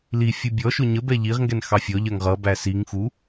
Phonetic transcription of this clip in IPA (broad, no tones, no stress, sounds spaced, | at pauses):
l i fʲ u bʲ ɔ ʃ ʊ ɲ ə b ɛ ʎ i ʁ ŋ ɡ ɛ n x ɑ fʲ ɔ ʎ ɜ ŋ ʁ ʌ b æ s i ŋ x u